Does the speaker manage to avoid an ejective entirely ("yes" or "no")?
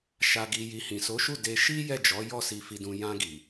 yes